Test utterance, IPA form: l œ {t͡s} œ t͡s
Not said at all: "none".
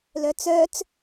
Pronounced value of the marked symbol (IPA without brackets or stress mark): t͡s